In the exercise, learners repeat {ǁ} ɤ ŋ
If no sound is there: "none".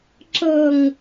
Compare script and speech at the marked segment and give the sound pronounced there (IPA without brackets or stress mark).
ǁ